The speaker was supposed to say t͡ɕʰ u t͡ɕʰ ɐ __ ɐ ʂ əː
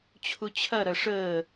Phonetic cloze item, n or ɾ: ɾ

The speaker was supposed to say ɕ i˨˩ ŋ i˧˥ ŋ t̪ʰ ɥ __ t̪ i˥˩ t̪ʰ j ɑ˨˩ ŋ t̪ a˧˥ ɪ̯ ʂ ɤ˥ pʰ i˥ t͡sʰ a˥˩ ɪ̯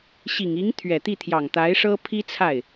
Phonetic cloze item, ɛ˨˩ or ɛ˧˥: ɛ˨˩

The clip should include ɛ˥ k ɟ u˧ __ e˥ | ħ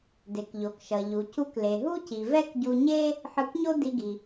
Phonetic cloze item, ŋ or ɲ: ɲ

